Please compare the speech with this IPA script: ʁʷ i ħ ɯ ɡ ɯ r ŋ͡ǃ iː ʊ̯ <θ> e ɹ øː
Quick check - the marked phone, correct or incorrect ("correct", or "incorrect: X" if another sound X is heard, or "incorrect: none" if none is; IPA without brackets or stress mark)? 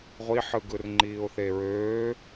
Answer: correct